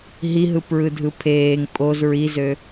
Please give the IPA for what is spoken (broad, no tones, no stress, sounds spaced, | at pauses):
ɦ i ɦ ɯ p ɹ ɯ dʱ ɯ pʰ eː ŋ pʼ o z ɹ i z ø